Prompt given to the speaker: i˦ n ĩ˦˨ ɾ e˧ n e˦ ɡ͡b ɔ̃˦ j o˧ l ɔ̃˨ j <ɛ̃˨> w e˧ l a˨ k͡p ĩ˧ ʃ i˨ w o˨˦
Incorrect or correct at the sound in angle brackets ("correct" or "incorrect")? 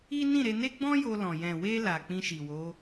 correct